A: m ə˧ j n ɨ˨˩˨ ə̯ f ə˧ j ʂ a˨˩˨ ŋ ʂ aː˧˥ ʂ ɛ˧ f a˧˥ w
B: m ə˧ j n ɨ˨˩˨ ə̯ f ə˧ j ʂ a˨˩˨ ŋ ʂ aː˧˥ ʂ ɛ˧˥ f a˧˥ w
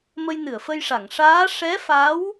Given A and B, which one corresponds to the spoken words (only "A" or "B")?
B